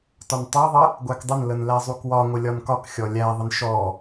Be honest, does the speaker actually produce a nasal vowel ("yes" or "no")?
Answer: no